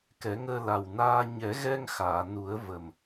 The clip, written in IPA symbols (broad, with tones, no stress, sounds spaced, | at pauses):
k ɛ˨˩˦ ŋ əː˧ l a˨˩ w n aː˧ ɲ ɛ˨˩˦ ɣ ɛ˧ ŋ x aː˨˩˨ n u˨˩˦ ə̯ v ə˨˩ m